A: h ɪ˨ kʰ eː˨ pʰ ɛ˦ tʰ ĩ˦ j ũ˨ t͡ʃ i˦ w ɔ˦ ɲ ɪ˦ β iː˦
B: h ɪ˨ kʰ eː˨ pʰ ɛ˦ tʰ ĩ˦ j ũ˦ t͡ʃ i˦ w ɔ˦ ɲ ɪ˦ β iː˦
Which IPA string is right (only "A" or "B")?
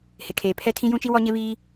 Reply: B